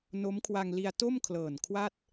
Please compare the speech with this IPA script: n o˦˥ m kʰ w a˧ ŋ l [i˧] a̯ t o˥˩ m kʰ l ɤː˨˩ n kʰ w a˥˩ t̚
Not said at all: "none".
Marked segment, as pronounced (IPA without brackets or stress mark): i˧